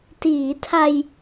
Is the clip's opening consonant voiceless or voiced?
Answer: voiceless